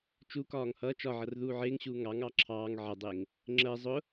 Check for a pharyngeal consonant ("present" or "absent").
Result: present